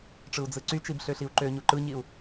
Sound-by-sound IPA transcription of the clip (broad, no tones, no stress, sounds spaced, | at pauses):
ʈ͡ʂ ɯ u̯ d͡z ɯ ǀ y t͡ʃ i b ɬ ø ɬ i u̯ ǃ ø ɲ u ǃ ɯ ɲ i u̯